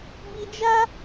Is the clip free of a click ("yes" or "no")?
yes